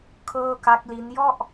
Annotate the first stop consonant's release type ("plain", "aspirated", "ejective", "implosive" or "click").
aspirated